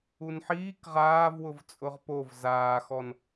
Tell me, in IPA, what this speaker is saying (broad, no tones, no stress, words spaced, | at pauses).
unħiːk ʁaːvwʊv t͡sʼʊʁpov zaːxɔn